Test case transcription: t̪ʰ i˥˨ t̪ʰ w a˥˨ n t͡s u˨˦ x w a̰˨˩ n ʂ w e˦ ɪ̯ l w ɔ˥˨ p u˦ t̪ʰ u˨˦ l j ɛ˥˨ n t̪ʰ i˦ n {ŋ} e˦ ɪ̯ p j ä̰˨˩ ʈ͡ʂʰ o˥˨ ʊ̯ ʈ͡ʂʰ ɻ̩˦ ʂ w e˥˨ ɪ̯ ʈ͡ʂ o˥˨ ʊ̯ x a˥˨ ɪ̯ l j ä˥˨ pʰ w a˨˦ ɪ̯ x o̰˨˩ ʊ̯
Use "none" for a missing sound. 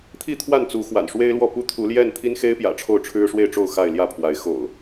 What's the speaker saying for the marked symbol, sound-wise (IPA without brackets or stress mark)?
x